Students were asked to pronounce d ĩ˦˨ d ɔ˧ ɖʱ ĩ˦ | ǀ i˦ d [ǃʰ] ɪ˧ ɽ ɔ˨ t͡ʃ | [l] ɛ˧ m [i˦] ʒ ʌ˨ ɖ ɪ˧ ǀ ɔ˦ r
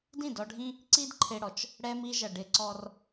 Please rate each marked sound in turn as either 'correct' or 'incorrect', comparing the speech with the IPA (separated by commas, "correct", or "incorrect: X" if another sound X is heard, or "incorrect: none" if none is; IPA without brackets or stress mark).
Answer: correct, incorrect: ɽ, incorrect: i˧